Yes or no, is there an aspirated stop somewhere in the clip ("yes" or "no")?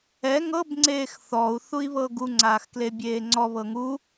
no